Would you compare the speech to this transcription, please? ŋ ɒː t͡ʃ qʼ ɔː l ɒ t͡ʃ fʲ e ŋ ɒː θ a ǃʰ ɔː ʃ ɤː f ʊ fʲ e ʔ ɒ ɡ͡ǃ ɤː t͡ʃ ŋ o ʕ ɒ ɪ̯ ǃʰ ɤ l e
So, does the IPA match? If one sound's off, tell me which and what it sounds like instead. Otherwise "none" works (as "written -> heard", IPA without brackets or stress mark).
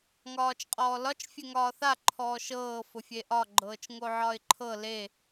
none